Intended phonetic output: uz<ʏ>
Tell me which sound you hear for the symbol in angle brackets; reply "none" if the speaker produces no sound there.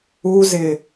ɪ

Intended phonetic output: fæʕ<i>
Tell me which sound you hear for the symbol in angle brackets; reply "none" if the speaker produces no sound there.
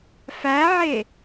e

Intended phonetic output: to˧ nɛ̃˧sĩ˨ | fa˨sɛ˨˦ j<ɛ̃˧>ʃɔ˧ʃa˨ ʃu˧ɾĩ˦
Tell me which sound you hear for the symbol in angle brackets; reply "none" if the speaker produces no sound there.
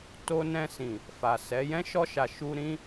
ɛ̃˦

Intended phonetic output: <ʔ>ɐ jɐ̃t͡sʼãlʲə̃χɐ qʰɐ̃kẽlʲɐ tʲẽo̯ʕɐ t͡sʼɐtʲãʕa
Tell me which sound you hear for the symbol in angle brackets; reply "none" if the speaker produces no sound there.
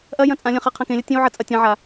ʔ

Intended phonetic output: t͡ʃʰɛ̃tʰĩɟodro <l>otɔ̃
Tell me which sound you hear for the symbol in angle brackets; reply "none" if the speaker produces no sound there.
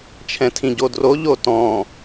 ʎ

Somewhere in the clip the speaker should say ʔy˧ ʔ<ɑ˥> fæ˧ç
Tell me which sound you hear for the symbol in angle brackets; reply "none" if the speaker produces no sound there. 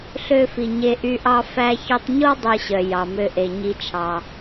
ɑ˥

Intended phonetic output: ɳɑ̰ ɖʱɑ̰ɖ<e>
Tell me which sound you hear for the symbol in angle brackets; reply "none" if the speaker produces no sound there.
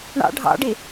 e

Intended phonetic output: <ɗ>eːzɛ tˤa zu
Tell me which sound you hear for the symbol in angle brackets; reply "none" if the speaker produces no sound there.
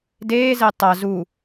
d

